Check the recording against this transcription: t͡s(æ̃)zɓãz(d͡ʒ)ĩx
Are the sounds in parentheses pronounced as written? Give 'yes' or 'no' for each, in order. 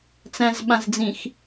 yes, no

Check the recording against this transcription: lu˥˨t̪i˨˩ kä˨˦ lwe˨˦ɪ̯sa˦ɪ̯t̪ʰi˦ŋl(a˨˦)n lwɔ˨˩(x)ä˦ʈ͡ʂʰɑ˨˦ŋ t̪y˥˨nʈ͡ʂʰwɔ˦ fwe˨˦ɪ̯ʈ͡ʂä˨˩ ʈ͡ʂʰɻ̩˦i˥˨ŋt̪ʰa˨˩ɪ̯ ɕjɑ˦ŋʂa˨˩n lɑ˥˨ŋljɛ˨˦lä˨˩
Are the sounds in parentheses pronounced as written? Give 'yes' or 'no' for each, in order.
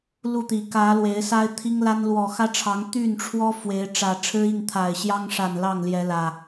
no, yes

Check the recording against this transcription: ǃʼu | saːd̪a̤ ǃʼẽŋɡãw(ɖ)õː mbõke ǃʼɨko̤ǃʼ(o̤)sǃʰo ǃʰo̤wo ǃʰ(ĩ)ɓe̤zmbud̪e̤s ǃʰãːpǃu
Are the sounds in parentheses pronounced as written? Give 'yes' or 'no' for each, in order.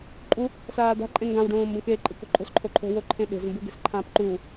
yes, yes, no

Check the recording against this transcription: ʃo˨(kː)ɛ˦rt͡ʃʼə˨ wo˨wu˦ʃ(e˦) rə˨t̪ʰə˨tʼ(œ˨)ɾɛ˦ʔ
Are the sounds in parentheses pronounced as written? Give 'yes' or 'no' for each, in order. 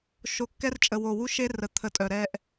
yes, yes, yes

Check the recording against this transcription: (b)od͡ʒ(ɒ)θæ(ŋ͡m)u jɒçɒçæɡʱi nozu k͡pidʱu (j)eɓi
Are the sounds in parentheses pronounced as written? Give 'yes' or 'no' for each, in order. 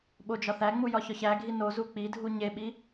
no, yes, yes, no

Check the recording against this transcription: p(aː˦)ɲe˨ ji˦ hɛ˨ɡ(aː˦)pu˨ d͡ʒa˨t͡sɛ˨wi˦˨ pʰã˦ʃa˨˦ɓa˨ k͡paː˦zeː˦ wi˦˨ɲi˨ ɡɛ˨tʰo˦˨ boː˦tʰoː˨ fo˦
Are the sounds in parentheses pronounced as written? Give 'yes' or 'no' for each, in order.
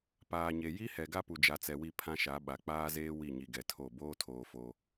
no, no

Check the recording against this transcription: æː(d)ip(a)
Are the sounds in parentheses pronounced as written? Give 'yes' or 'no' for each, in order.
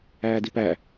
yes, no

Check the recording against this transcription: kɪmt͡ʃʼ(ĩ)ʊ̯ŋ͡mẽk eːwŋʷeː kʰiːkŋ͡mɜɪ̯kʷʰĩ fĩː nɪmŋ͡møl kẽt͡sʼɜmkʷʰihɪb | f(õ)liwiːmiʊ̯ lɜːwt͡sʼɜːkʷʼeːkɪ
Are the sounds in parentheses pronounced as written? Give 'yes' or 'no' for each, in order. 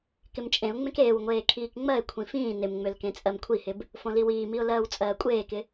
no, yes

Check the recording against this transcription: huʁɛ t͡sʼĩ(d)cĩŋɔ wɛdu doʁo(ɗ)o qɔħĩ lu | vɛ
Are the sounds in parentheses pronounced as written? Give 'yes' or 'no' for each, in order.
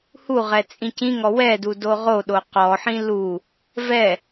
no, yes

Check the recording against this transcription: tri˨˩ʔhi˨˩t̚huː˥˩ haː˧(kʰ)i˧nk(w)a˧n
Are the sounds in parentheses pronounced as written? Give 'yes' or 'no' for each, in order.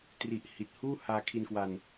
yes, yes

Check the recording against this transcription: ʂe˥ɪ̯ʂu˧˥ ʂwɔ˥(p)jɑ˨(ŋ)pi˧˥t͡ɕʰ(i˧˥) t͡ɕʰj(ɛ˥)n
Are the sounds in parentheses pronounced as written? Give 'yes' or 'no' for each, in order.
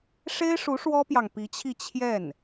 yes, yes, no, no

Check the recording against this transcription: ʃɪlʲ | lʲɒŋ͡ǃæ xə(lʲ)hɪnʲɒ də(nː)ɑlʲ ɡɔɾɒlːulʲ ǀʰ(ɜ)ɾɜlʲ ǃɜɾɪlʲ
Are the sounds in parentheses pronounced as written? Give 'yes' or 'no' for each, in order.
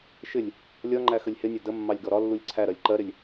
yes, no, no

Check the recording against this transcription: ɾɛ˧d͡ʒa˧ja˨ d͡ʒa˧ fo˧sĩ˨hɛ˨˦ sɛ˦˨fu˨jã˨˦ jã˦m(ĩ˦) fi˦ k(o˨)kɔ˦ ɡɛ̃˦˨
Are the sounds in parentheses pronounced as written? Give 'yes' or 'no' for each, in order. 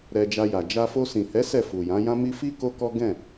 no, no

